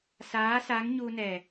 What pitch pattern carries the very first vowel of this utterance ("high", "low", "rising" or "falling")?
rising